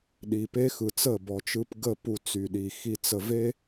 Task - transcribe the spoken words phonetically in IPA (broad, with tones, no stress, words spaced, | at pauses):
ɗi˨pe˦xɯ˨t͡sə˦˨ bɔ˨t͡ʃɯ˧p ɡə˦˨ pu˧ t͡sy˨ɗi˨xi˧t͡sə˧ ve˦